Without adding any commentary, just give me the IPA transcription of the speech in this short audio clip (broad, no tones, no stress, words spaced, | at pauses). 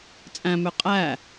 t͡sʼæ̃mø qʼæ